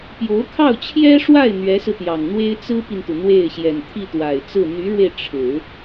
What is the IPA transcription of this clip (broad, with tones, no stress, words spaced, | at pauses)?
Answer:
pjo˧˥ʊ̯kʰɑ˥˩ʊ̯t͡ɕʰjɛ˥ʂwa˥˩ɪ̯ n̪ɥɛ˧˥sɹ̩˧t̪jɑ˨˩ŋn̪we˥ɪ̯ t͡sɹ̩˥pi˨nt̪u˩ n̪we˥˩ɪ̯ ɕjɛ˨˩nt̪ʰi˥˩t̪wa˨˩ɪ̯t͡sɹ̩˥˩ n̪y˧˥ɻwe˧ɪ̯ ʈ͡ʂʰɻ̩˨˩˦